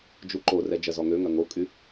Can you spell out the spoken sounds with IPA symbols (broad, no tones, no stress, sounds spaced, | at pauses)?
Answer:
d͡ʒ u ǃ o r ɛ d͡ʒ ɐ z ɔ ŋ ø ŋ ɐ ŋ o kʼ y